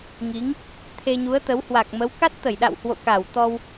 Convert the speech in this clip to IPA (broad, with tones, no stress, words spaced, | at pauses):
ŋi˨˦ŋ | t̪ʰe˧ɲu˨˦ə̯t̪ə˨˦w hwa˨˩k̚mə˨˦w ka˦˥t̚t̪ə˧˩jɗa̰˧˨whwo̰˧˨ ka˧˩wt̪ɔ˧w